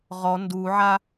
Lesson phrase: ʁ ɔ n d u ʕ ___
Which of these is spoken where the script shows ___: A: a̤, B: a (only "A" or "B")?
B